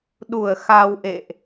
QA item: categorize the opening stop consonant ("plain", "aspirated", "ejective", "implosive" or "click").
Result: implosive